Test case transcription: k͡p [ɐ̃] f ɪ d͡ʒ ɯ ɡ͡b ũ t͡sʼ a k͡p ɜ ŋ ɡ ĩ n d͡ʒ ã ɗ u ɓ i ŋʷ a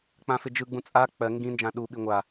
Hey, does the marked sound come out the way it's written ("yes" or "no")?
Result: no